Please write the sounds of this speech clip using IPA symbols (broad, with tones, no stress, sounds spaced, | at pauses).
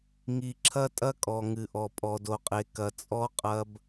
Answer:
ŋ i˨ ǁʰ ɐ˦ tʼ ɐ˦ kʼ ɔ˨ ŋ ɨ˨ ʔ ɔ˨ pʼ ɔ˨ d o˨ qʼ e˨ k ɐ˨ t͡sʼ ɔ˦ qʼ ɐ˦ b